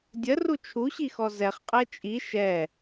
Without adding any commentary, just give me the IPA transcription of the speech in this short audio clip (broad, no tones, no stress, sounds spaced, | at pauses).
dʲ ə r u t͡ʃʰ u ɕ i x ɔ z ɛ χ qʼ ɛ t͡ʃʼ i ʃ ɛ